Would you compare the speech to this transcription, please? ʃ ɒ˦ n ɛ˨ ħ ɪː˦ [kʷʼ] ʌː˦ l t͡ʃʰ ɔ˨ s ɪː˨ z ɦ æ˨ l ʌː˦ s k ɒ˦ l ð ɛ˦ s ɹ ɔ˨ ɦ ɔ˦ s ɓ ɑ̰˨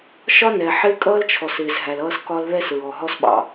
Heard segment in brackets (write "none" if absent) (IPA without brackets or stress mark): kʼ